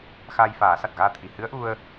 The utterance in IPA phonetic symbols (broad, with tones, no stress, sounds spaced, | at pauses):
x aː˧ j f aː˨˩˦ s a˨˩ t̚ ɣ aː˧ t̪ʰ i˨˩ h ɨ˧˥ ə̯ ʔ u˧ ə̯